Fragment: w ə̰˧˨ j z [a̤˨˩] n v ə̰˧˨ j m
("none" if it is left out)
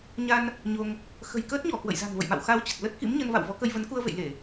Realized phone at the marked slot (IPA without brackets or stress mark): a̤˨˩